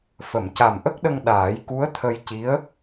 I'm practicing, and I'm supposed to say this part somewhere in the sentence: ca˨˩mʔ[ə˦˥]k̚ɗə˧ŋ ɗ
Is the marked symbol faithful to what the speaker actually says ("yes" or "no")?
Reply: yes